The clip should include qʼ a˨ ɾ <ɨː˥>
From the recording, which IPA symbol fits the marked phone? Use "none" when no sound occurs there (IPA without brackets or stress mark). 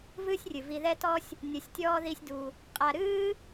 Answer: ɨː˥